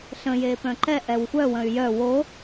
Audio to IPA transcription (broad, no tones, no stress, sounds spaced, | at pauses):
ɬ ə̃ j eː p œ̃ ǃ ɛ ʔ ɛ w xʷ œ w ə̃ y̯ j œ w o